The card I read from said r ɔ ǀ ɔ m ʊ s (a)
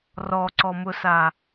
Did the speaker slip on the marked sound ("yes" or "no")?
no